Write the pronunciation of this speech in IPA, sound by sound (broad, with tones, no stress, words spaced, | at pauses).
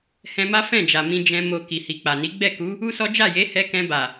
hɛ̃˧ma˦ fɛ̃˦˨d͡ʒa˨ mĩ˧ d͡ʒɛ̃˧ mo˨ ki˨hi˨k͡pa˨ni˨˦ ɡ͡bɛ˦˨ku˨˦ | u˦sɔ˦ d͡ʒa˦˨je˨˦hɛ˧ kɛ̃˧ba˨